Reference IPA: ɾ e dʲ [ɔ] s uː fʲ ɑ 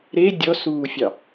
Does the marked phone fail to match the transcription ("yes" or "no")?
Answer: no